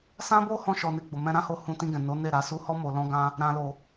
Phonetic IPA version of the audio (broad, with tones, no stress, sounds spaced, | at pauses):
s ã˦ b o˦ h ɔ̃˧ ʃ ɔ˨ n e˧ ɡ͡b o˨ m ɛ̃˧ ɾ ã˦ h o˧ h ũ˧ t ĩ˧ ɡ ɛ̃˨ n o˨˦ n e˦˨ ɾ a˧ s u˧ h ɔ˦ m o˧ l ɔ̃˦ ɡ ã˦ | ɾ ã˨ l o˨